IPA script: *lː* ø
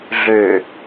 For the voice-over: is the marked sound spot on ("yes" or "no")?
no